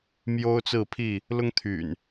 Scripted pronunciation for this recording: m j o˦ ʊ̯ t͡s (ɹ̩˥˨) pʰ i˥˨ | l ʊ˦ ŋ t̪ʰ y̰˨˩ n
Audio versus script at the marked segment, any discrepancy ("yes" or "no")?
no